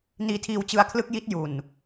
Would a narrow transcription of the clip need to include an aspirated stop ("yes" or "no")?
yes